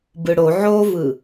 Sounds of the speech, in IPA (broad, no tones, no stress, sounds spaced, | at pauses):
b ɯ ɽ o ʕ o v ɯ